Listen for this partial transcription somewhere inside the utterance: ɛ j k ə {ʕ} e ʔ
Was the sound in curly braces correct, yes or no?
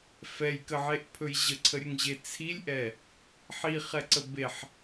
yes